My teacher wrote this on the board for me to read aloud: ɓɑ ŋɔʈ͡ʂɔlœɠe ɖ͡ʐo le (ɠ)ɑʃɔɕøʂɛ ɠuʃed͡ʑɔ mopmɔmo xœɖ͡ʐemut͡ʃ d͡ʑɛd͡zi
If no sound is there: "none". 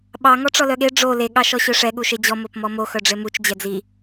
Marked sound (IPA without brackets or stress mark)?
ɠ